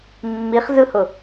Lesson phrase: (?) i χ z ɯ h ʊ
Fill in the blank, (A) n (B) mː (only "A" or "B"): B